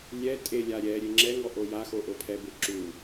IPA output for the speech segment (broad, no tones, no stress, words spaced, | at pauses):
lʲɛ tʼelʲa ɾʲɛ ɾʲeŋ͡ǁɛŋɔ ʔojaxo ʔopʰɛbe ǁu